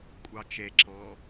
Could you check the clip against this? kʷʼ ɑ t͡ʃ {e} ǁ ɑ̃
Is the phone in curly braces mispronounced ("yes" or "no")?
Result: no